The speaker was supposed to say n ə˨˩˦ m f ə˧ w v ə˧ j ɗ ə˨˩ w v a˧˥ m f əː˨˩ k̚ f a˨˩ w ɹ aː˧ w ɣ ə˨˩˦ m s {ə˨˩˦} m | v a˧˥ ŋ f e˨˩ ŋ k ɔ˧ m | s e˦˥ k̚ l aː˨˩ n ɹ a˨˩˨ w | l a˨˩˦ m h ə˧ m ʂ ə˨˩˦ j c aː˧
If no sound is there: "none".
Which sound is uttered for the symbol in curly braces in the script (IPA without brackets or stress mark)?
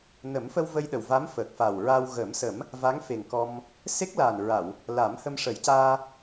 ə˨˩˦